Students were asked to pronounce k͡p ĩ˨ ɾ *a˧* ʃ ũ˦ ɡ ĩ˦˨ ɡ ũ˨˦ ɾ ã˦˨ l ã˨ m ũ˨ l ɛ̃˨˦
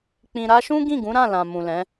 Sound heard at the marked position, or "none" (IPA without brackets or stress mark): a˧